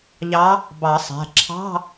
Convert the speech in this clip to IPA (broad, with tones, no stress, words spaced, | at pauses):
ʎɑ˧˥ | bɑ˨˩˦sˤæ̤˩˧˩ ǁʰɑ̤˧˥˧